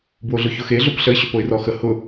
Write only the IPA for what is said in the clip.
bwoɮʊçʊxe ɮopɬəɪ̯ ɕʏpoɪ̯rɔxə hʊ

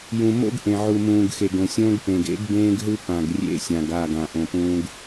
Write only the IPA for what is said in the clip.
jũ˨mo̰˦ɡ ʔẽ˨ʕu˨mũː˨ɡ xe˨ɡõ˨sʲõː˦ɡpẽ˨ɡ ḛ˦ɡ bẽː˦ɡɦɯ˦pã˨ɡ rʲḛ˦ sʲã˨ɡ a˦˨ɡã˨ ʔõ˨pũː˦ɡ

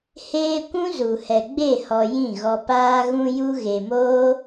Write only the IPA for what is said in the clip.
heː˧ kʷũ˦zu˨hɛ˨ ɡ͡be˦˨hɔ˨ jĩ˦˨ɣɔ˧paː˦ ɣũ˧ju˧ɣe˨moː˦

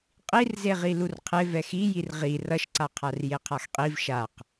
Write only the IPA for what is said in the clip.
qʼirzeʁi lurqʰe vɛxijir ʁi rʌʃǀaqʰar jeqʰaxqʼiv ʃaq

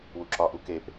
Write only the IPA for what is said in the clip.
wuǁɒʔu kep

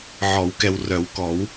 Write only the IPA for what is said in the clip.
ʕɔ˨˩˦wkɛ˨wrœ˨˩˦wkɔ˨˩˦w

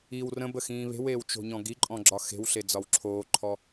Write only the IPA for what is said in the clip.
iw rə̃bə xĩːβe̤weːw t͡ʃo̤ɲɔ̃ɡiǃʼɔ̃ ɡ͡ǁɒxe̤wɬe d͡zɒwǁʰoːǃʰɔ

